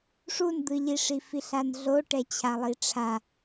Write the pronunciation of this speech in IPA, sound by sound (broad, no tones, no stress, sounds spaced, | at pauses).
ʂ u n d̪ ɯ ʎ i ʂ i f i ɬ a n ɮ o ʈ ɛ t͡ɕʰ a lˠ i ʈ͡ʂʰ a